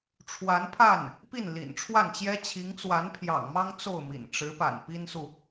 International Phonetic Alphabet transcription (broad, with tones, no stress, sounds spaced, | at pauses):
ʈ͡ʂʰ w a˧˥ n pʰ a˥˩ n | p i˥˩ n l ḭ˨˩ n ʈ͡ʂʰ w a˥˩ n t͡ɕ j ɛ˥ t͡ɕʰ i˧˥ ŋ t͡s w a˧˥ n pʰ j ɑ̰˨˩ ŋ m ɑ˥ ŋ t͡s o˥˩ ʊ̯ m ḭ˨˩ n ʈ͡ʂ ɻ̩˧˥ p a̰˨˩ n p i˥ n s u˨